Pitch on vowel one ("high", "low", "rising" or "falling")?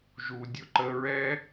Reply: low